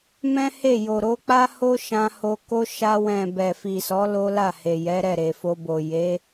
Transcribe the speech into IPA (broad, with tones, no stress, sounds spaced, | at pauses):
m ɛ̃˦ h e˦˨ j o˨ ɾ o˧ k͡p a˦ h o˦ ʃ ã˧ h o˧ k o˦ ʃ a˧ w ɛ̃˨ b ɛ˨ f i˨ s ɔ˨˦ l o˦ l a˦˨ h e˨ j ɛ˨˦ ɾ ɛ˦˨ ɾ e˨ f o˧ b o˨ j e˨˦